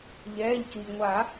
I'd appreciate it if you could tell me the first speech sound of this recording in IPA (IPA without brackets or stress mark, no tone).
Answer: ʎ